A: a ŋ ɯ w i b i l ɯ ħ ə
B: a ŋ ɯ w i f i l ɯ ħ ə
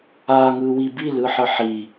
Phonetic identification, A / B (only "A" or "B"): A